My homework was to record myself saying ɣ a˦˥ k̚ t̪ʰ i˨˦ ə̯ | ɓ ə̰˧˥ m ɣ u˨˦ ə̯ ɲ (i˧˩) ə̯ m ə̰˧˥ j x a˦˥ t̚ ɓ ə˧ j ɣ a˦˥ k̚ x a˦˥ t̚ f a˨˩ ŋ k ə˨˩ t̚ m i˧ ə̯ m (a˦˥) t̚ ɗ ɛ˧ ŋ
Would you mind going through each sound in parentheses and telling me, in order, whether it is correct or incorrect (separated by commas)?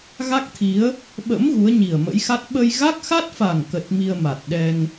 incorrect, incorrect